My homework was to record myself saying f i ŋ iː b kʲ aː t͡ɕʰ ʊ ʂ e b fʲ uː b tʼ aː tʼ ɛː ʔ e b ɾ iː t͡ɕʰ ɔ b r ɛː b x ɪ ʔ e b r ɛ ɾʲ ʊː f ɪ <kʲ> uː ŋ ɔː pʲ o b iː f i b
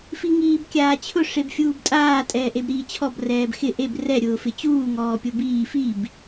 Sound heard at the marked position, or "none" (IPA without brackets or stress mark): t͡ɕ